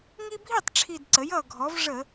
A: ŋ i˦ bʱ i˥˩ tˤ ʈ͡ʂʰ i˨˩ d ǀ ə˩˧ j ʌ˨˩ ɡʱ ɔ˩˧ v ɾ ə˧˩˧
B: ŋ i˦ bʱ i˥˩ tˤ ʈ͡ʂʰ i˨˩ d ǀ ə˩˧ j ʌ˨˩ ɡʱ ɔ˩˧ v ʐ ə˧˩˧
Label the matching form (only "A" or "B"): B